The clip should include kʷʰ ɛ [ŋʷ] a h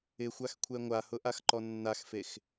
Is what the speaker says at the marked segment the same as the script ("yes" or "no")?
yes